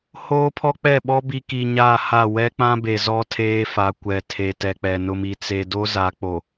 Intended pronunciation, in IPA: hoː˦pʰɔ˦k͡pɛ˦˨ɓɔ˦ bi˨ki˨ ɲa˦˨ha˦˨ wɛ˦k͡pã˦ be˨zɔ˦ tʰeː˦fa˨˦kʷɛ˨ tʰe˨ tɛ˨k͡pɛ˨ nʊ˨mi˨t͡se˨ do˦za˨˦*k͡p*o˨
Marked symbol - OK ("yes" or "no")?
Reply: yes